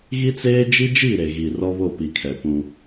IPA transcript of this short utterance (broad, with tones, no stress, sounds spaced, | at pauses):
ɣ i˦ t͡s eː˦ d͡ʒ i˦ d͡ʒ i˦˨ ɾ e˨ ɣ i˨ r ɔ˦ β o˦˨ p i˨ kʰ ɛ˨ p ũ˦